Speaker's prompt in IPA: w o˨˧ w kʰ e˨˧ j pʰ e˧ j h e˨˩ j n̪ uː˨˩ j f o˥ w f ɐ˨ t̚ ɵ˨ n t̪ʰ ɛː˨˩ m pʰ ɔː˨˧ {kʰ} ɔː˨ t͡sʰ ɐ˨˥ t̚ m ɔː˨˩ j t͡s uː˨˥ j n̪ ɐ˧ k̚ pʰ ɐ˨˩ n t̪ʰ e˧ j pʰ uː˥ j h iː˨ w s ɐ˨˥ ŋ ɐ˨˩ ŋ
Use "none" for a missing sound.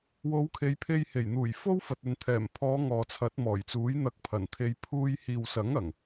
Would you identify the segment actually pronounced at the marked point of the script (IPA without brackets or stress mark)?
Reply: ŋ